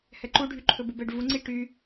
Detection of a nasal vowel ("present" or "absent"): absent